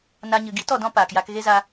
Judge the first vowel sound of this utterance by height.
low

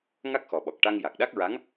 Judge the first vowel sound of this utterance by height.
low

